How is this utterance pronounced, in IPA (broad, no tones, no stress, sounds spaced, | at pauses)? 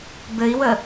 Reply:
b ɘ i̯ w ə